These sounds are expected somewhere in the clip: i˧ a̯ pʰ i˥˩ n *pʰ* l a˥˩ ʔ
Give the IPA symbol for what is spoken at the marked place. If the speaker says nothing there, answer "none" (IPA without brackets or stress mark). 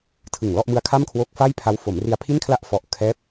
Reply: kʰ